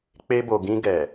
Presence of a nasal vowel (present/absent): present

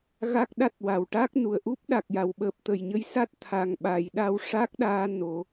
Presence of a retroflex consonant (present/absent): present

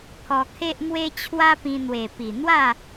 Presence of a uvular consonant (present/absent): absent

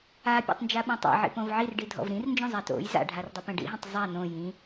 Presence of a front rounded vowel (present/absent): absent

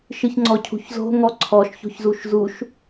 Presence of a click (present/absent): present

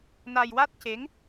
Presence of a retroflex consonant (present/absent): absent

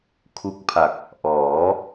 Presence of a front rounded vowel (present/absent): absent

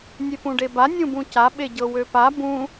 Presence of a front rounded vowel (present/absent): present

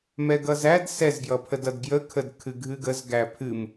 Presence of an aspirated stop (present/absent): present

